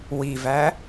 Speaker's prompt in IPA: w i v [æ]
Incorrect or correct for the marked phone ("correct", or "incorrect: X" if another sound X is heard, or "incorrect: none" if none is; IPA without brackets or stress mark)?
correct